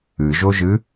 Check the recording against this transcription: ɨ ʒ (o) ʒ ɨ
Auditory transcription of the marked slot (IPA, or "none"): o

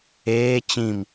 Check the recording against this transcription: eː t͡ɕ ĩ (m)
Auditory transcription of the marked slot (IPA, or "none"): m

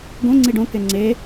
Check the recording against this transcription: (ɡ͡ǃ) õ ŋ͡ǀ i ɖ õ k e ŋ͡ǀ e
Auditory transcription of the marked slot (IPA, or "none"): ɡ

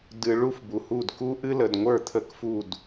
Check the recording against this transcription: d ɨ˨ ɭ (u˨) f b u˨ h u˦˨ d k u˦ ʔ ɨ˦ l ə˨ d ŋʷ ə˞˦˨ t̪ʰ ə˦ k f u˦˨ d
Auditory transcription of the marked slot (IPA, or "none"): u˦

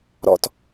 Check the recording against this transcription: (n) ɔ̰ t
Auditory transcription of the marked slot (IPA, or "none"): ɾ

